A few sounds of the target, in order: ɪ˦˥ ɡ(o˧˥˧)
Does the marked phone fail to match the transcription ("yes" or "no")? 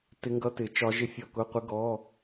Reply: yes